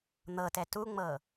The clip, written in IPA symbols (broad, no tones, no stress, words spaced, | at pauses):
n̪ɤtɛ tuŋ͡mɤ